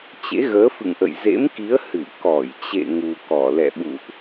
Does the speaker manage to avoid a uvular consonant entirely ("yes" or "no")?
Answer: yes